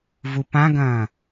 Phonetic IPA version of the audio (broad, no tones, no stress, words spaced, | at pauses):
vupãɡɐ̃ː